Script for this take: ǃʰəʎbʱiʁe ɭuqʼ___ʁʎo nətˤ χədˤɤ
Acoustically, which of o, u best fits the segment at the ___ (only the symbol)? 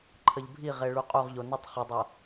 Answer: u